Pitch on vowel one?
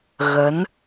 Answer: rising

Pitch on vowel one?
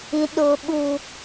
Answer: low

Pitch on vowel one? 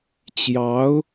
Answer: rising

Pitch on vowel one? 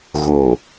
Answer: low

